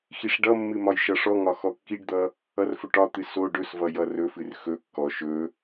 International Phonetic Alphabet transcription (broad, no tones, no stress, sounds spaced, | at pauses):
x i ʂ ɖ ʌ mː ɨ m ɒ j ʃ ʌ ʂ ɔ ŋ ɒ x ɔ kː i ɖ d̪ ʌ | ʌ r f ɵ ʈ ɒ t̪ ɨ s o ɖ ɵ s v ʌ j ʌ r ɵ f ɨ r x ɵ kː ɔ ʃ ɵ